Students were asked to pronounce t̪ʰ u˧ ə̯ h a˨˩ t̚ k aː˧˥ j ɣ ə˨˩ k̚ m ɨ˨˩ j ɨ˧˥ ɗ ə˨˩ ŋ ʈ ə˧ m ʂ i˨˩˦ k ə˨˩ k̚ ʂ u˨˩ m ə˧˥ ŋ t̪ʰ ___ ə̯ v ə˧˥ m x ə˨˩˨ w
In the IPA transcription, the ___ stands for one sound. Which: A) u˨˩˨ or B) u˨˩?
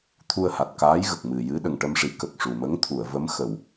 A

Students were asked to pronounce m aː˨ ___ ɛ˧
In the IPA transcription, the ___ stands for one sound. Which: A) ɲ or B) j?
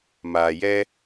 B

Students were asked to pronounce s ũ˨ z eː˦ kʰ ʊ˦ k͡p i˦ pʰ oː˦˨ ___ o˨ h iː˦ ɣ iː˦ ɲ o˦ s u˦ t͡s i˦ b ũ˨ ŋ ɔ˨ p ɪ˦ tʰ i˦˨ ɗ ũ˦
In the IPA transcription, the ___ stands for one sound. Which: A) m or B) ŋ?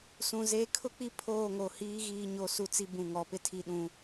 B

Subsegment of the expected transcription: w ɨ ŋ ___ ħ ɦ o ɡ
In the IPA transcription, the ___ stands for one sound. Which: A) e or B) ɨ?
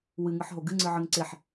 B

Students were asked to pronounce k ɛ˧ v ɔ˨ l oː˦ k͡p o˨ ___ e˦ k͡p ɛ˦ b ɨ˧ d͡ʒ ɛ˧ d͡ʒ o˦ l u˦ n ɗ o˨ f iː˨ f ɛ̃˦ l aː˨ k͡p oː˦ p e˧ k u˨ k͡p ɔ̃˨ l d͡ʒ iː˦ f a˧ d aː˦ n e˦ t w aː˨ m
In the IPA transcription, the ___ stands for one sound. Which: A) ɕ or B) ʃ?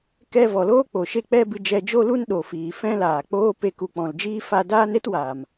B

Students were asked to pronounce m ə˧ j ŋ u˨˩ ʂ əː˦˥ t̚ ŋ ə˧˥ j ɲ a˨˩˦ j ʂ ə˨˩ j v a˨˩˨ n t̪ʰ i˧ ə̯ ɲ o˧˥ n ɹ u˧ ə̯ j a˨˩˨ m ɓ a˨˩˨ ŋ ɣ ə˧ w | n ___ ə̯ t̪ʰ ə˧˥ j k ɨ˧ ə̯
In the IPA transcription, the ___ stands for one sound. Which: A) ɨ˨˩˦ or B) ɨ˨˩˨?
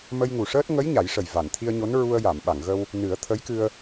A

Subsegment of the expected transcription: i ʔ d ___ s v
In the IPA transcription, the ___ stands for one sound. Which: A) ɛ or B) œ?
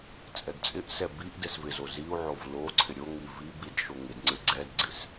A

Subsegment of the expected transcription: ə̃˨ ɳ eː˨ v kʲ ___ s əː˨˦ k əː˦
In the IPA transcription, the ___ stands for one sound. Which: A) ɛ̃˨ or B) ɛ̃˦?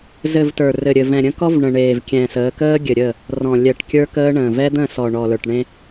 A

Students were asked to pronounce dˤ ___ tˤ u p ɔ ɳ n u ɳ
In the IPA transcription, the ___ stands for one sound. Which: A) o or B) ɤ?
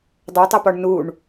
B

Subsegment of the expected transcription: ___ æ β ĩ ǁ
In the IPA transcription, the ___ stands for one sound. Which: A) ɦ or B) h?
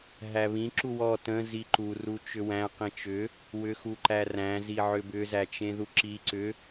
A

